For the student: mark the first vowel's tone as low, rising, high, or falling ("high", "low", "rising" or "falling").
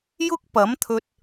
high